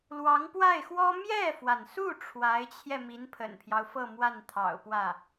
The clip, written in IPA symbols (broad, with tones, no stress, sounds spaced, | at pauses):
l w ɑ˧˥ ŋ p w a˥˩ ɪ̯ x w ɔ˥ m j ɛ˥˩ f w a˩ n s u˥˩ ʈ͡ʂʰ w a˧˥ ɪ̯ t͡ɕʰ j ɛ˧ m i˧˥ n pʰ ə̰˨˩ n pʰ j ɑ˦ ʊ̯ f ɤ˥˧ m w a˥˩ n t̪ʰ ɑ̰˨˩ ʊ̯ p w ä˥˩